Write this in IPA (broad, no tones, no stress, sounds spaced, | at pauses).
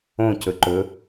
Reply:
õ c ɵ ǃ ɵ